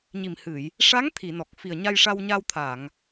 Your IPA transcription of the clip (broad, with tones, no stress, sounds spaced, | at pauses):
ɲ i˨˩ m h ɨ˨˩˨ j | ʂ a˧˥ ŋ t̪ʰ i˨˩˨ n ɔ˨˩ k̚ f i˨˩ ə̯ ɲ a˧ j ʂ a˧ w ɲ a˧ w t̪ʰ a˨˩˨ ŋ